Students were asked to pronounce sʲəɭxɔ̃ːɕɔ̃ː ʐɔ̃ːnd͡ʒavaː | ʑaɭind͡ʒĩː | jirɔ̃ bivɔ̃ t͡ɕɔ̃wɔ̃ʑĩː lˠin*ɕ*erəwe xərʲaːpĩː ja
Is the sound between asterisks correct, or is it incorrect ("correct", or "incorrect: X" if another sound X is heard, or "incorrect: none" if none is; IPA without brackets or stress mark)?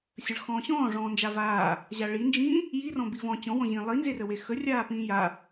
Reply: incorrect: z